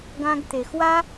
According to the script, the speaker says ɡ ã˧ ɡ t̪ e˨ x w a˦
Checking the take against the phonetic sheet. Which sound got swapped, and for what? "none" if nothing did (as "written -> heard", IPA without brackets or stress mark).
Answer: none